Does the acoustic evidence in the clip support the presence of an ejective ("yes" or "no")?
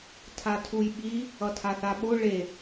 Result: no